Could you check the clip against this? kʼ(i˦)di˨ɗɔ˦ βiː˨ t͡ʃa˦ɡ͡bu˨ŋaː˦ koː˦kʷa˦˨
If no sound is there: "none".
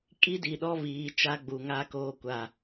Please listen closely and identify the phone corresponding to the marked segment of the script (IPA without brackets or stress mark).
i˦